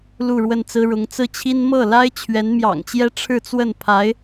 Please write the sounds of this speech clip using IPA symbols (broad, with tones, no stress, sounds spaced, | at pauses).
l u˥˧ ɻ w ə˥˩ n t͡s ɹ̩˥ ɻ ʊ˧˥ ŋ t͡s ɹ̩˥˩ t͡ɕʰ i˥ n m ɤ˥˩ l a˥ ɪ̯ t͡ɕʰ ɥ ɛ˧˥ n m j ɑ̰˨˩ ŋ t͡ɕ j ɛ˥ ʈ͡ʂʰ ɻ̩˥˧ t͡s w ə˥˩ n pʰ a˧˥ ɪ̯